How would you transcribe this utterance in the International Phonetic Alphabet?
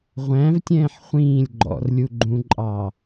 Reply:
ʁʷ æ̃ v tʲ ɛ̃ː ħ χʷ ĩː lʲ ɡ͡ǃ ɔ̰ r lʲ u ɡ͡ǃ ũ ǃʼ ɑː

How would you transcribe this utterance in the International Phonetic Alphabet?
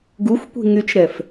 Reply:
ɡ u xʷ kʷ i̤ ŋ y t͡ʃ ɾ ɛ f

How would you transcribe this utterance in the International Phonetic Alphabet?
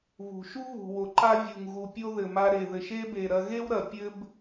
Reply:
β ṳ˩ ʃ u˦ β ṳ˩ w o˩ ǃ a˦ vʲ u˩ ŋ ɣ u˩ pʲ o˦ ð ɘ˩ m a˨ ɾ e˩ ð ɘ˩ ʃ e˦ b e˩ ɾ ɐ˨ ɣ e˥ w ɾ ɐ˩ pʲ ɘ˦ b

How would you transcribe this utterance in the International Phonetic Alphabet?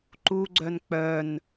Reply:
ǃ u ɡ͡ǀ œ n k͡p œ n

